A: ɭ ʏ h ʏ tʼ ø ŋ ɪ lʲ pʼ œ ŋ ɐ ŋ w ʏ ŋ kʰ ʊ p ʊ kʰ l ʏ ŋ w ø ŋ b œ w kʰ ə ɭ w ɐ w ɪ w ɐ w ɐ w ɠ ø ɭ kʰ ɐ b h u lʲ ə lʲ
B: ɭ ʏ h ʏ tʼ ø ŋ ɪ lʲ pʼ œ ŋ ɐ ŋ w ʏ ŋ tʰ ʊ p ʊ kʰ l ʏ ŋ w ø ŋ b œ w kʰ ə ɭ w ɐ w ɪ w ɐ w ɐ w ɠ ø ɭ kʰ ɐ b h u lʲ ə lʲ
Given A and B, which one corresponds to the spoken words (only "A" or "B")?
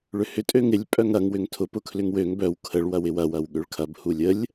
B